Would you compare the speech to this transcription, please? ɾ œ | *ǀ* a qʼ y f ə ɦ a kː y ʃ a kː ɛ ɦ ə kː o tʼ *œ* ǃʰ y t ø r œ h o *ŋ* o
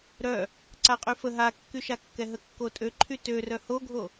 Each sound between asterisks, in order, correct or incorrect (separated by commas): correct, incorrect, incorrect